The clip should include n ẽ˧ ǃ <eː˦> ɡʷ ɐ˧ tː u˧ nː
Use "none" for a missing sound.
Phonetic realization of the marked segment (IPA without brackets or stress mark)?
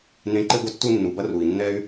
e˦